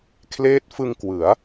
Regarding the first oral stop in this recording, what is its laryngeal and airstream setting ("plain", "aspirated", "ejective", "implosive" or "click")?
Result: aspirated